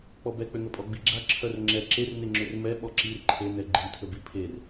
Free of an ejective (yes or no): no